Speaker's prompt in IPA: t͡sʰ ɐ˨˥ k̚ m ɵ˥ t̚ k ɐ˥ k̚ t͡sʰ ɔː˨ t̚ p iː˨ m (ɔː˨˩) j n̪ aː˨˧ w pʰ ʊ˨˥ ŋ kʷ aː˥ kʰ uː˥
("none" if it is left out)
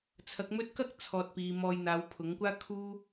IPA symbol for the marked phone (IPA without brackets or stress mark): ɔː˧